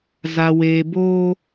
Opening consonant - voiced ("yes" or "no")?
yes